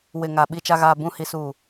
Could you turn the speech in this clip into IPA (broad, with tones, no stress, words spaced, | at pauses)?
wɪ˨ŋa˨ ɓi˨t͡ʃa˨ ɣaː˨bũ˨ hi˨suː˨